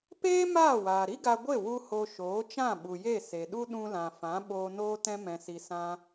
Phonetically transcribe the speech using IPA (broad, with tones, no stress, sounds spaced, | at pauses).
p eː˦ m aː˦˨ w aː˨ ɾ i˦ ɡ a˧ ɡʷ e˦˨ w u˧ h o˧ ʃ oː˨˦ t͡ʃ ã˦˨ ɓ u˨ j e˦˨ s e˨ ɗ u˦ ɗ ũ˧ l ã˨ f ã˨˦ ɓ oː˧ n oː˦ t ɛ̃˦ m ɛ̃˧ s i˧ s ã˦